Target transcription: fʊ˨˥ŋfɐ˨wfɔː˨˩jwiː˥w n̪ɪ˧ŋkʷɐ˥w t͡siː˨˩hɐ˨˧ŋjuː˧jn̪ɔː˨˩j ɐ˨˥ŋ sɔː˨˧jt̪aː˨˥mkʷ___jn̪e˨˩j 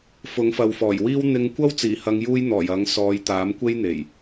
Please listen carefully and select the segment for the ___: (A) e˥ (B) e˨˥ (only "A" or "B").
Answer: A